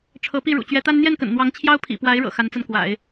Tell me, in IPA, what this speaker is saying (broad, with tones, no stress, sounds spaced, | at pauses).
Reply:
ʈ͡ʂʰ ɤ˧˥ p i˥˩ ɻ ṵ˨˩ t͡ɕ ɥ ɛ˧˥ t̪ a˥ n n̪ j ɛ˥˩ n k ə̰˨˩ n n̪ w ɑ˧˥ ŋ t͡ɕʰ j ɑ˥ ʊ̯ pʰ ḭ˨˩ p w a˧˥ ɪ̯ ɻ ɤ̰˨˩ x a˧˥ n t͡s a˧ n k w a̰˨˩˦ ɪ̯